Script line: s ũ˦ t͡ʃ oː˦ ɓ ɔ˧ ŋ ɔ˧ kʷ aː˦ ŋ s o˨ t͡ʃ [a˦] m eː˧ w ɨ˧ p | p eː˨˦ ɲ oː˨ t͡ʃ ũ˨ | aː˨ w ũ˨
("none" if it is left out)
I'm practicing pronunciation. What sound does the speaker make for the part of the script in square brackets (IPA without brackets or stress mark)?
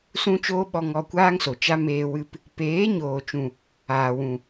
a˦